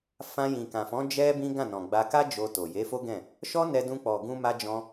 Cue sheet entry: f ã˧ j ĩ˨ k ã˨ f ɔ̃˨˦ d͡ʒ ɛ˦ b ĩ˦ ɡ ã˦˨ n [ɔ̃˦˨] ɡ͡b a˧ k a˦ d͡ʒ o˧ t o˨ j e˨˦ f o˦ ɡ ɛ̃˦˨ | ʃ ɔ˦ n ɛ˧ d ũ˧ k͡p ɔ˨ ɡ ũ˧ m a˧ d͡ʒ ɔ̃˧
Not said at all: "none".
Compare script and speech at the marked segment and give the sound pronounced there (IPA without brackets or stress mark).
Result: ɔ̃˨